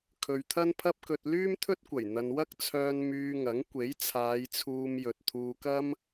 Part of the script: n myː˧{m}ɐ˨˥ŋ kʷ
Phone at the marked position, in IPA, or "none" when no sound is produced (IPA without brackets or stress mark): ŋ